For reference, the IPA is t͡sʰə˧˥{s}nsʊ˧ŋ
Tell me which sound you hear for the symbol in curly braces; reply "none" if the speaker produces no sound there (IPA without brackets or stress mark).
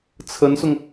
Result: none